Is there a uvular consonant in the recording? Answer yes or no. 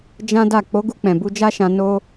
no